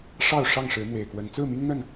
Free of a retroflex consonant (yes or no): no